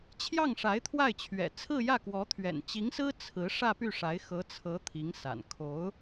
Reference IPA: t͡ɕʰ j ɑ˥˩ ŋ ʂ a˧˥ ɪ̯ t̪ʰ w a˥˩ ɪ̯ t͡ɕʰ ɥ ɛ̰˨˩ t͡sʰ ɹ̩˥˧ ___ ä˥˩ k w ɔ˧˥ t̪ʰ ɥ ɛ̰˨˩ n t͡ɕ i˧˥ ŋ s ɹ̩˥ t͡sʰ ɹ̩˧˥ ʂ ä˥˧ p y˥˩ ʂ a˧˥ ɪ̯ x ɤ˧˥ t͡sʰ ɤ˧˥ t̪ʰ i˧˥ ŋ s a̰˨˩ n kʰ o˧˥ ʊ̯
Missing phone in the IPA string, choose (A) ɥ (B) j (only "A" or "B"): B